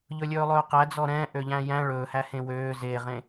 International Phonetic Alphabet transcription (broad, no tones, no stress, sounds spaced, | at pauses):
ʎ ɵ lʲ ɵː lˠ ɵː q æ d͡z ɔ ɾ ɛ̃ː ʔ ø ʎ æ̃ j æ̃ ɭ ɵː h æ h ẽ w øː z e ʁ ẽ